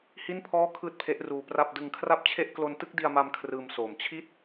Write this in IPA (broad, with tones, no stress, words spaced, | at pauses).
hi˥˩npʰɔː˥˩ kʰɯː˥˩t̚pʰe˦˥ʔruː˧pra˥˩p̚ dɯ˧ŋkʰra˥˩p̚t͡ɕʰe˥˩ʔ klo˧ntɯ˥˩k̚di˧a̯ma˧m kʰrɯː˧msoː˨˩m t͡ɕʰi˥˩t̚